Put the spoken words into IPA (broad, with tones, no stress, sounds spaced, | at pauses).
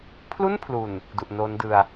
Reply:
pʰ l u˥˩ n pʰ l u˨˩ n | d u˨˩ ʔ n oː˦˥ n d ɯ˧ a̯